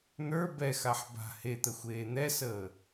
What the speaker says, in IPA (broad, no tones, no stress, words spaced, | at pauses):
n̪ə˞ bɛxaħ ba̤ het̪əxʷeː n̪ɛsəː